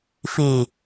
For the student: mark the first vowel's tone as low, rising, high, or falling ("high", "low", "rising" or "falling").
low